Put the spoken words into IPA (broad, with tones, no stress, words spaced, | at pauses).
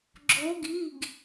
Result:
ɡ͡ǁo˨˦ɡi˩˧˩ɡ